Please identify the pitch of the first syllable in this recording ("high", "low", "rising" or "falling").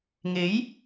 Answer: rising